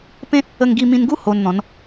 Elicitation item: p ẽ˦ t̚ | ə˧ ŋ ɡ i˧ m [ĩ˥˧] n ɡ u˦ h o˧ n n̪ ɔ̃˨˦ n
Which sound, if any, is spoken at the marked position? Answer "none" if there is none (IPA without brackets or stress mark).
ĩ˧